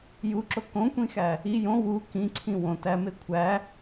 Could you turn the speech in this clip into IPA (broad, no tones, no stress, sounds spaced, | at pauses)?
j u ǁ o k õ kʷ ĩ x æ | i j õ w u k ĩ ǀʰ ĩ w õ t æ m e kʷʰ æ